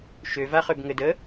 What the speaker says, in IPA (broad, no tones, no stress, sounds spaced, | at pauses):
ʃ ø v a χ ø b ŋ ɘ d ə